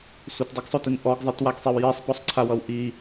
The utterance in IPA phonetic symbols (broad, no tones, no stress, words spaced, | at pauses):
sʷətdˤəɡsˤotin ʔɔɡzˤɨtwaɡsˤiw jisˤpɔsˤǀʰawʌw ʔi